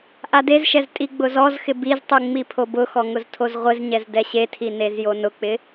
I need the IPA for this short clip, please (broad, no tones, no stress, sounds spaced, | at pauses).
ʔ a d e z ʃ ɛ z tʼ i ɡ͡b ʊ z ɔ z x ɪ b i z tˤ u ŋ͡m i pʰ o b ʊ x ɔ ŋ ʊ z tʰ o z ʁʷ ɪ z ɲ ɛ z d ɛ ɕ e tʰ i n e z j o n ʊ k͡p ɪ